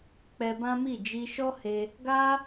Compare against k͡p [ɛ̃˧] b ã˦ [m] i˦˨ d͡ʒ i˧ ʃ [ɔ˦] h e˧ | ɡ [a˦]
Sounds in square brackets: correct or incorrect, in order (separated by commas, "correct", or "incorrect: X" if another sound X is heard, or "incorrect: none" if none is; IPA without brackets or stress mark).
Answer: incorrect: ɛ˧, correct, correct, correct